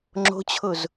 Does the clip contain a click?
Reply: yes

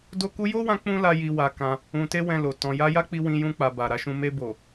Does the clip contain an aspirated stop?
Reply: no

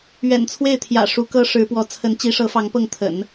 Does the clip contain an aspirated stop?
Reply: yes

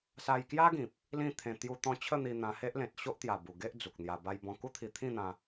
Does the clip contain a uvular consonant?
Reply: no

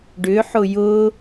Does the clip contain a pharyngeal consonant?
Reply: yes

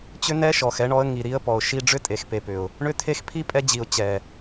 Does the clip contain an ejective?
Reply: yes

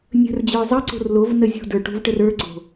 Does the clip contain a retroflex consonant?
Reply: yes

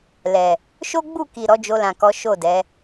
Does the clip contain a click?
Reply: no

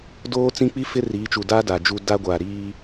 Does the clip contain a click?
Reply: no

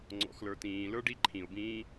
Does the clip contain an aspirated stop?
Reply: yes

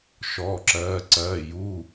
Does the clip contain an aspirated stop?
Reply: no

